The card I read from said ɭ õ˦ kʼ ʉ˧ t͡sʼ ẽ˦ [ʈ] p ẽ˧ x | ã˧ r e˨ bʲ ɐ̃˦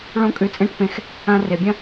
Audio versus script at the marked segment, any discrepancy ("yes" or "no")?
no